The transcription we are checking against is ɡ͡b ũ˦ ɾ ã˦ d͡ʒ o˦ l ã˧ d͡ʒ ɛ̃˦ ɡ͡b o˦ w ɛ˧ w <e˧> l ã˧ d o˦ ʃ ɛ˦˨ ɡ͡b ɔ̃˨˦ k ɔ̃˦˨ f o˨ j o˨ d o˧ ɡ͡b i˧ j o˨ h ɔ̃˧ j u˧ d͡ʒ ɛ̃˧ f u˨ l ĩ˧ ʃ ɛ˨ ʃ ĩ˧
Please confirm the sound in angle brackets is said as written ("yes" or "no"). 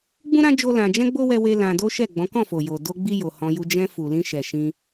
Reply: yes